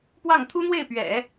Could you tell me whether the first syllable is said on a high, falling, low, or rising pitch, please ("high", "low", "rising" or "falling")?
falling